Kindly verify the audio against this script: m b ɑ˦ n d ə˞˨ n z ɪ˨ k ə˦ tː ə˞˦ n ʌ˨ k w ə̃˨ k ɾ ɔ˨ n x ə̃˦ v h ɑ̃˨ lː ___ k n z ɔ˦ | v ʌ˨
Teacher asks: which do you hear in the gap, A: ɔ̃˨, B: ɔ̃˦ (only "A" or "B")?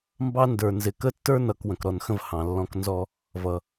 B